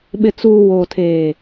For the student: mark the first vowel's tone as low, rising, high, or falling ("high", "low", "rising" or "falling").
low